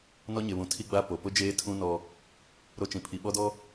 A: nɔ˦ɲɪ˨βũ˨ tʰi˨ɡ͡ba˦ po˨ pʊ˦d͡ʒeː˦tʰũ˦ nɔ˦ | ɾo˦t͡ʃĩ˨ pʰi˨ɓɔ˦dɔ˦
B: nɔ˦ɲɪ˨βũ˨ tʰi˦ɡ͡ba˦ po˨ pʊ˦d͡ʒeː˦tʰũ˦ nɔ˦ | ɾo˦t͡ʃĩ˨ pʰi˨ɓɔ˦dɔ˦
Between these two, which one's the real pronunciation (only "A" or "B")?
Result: B